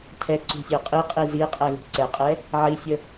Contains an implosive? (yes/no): no